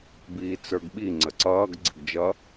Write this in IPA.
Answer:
b iː t͡s ə˞ ɡ ɓ i ŋ͡ǀ ə ǀ ʌː ɡ ɡ͡ǀ ɪ ɡ d͡ʒ ʌ

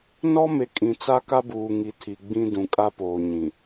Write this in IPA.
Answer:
n ɔ˦ m e˨ kʼ ĩ˨ t͡s a˦ k a˦ b uː˨ ŋ i˨ tʰ i˨ ɡ͡b ĩ˦ d ũ˨ kʼ a˦ p oː˨ ɲ ĩ˨

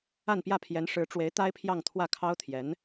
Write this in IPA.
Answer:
a˥˧ n p j ä˥˩ pʰ j ɛ˧˥ n ʂ ɻ̩˧˥ ʈ͡ʂ w e˧˥ ɪ̯ t̪ a˥ ɪ̯ pʰ j ɑ˥˧ ŋ t̪ʰ w ä˥˩ kʰ ɑ˥ ʊ̯ t̪ʰ j ɛ˧˥ n

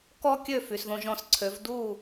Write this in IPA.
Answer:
k ɔ˥ kʲ ø˥˩ f y˩ s ð õ˧ ʒ ɔ̃˧ s ǀʰ ø˩˥ v d u˥˩

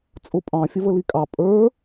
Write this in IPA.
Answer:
t͡sʼ ʊ pʼ ɑ̃ fʲ ə v ə l i kʼ ɑ pʼ ə˞

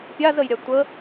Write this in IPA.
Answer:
pʲ a z ə j ɾʲ a tʷ ə

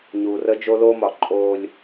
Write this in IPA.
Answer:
ɲ uː˨ r ə˦ d͡ʒ o˦ l oː˦ m ɒ˨ ǃʼ oː˦ lʲ

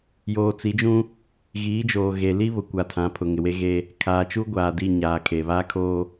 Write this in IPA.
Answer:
j oː˨ t͡s i˨˦ d͡ʒ ũ˦ | ɣ iː˨˦ d͡ʒ oː˨ ɣ e˨ l i˦ β ʊ˨ kʷ a˨ tʰ ã˨˦ pʰ ʊ˨ ŋ ɪ˨ w e˦ ɣ e˦ | kʰ aː˨ t͡ʃ u˦ ɡʷ aː˨ d i˦˨ ɲ aː˨ kʰ e˨ β aː˦ kʰ oː˦

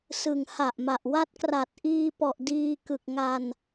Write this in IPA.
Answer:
s ɯ˨˩ ŋ h a˨˩ ʔ m a˨˩ ʔ w a˦˥ t̚ k r a˨˩ t̚ ʔ iː˧ p ɔ˨˩ ʔ d iː˧ k ɯ˨˩ k̚ ŋ a˧ n

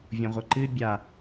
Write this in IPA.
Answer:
vʲ õ ʁʷ ɐ ǃ ɨ bʲ a

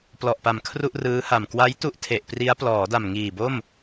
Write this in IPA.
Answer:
p l ɔ˨˩ ʔ p a˨˩ m kʰ r u˥˩ ʔ r ɯː˦˥ h a˨˩ m k w a˦˥ j t u˥˩ ʔ tʰ e˨˩ ʔ p r i˦˥ a̯ p l ɔː˩˦ d a˨˩ m ŋ iː˨˩ b o˥˩ m

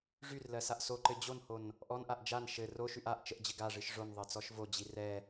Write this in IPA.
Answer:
ʐ y r l ɜ s a ʔ s o ǃ ɘ d͡ʑ o n h o n | ʔ ɔ n ʔ a ʔ d͡ʒ a n ʃ ɘ r o ʃ y ʔ a ʔ t͡ʃ ə ʔ d͡ʑ ɘ ɡ a ʐ ɨ ʃ ʐ o n ðˤ ɜ t͡s ɔ ʃ v o d͡ʑ i r ɛ

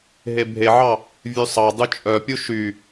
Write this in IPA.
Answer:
ɦ e bʱ e ʕ ɑ | vʲ ʉ sˤ ɑ dˤ ʉ t͡ʃʼ œ pʲ u ʃ y

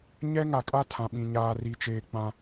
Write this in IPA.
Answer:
ɲ ɛ˦ ŋ a˨ kʼ a˦ tʰ ã˨ ɓ ĩ˨ ɲ aː˨ r i˨ t͡ʃ eː˨ k͡p ã˦

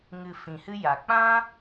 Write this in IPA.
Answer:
ŋ ɨ˨ f ĩ˨ h ɨ˦ j a˨ k͡p ã˦

